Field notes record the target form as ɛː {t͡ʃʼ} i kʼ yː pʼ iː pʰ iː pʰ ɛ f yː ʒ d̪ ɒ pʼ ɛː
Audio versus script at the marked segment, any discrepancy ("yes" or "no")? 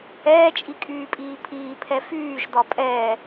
no